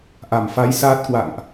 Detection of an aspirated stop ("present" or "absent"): absent